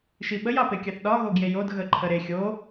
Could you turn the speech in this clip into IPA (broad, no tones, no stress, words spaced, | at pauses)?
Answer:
ʃiɓəj ɑpekʲɑθɗɒ ɣoɡjejod ɣəǃʰəɾe xʲo